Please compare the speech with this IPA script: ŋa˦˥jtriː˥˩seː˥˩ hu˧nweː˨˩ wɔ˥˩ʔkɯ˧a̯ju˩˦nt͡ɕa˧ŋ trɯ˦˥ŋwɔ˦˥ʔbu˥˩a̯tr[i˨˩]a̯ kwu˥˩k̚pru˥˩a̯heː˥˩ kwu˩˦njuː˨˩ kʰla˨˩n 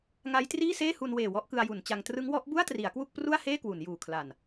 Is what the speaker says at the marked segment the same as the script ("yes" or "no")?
no